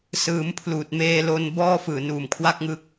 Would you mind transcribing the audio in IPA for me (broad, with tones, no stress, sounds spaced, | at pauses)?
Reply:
s ɯː˩˦ m pʰ l uː˨˩ t̚ m eː˧ l o˧ n b ɔː˥˩ f ɯː˨˩ n uː˨˩ m kʰ w a˥˩ k̚ ŋ ɯ˦˥ k̚